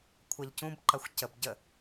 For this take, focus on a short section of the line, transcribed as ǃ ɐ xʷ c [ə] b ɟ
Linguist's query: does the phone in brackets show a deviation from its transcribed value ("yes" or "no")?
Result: no